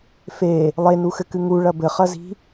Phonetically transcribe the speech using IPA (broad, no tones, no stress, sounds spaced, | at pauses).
f e | lˠ e n u x ɘ k ɨ ŋ u ɭ ɐ b ɘ χ ɐ z i̤